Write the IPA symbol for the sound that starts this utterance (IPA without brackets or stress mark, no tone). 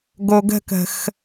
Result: ɡ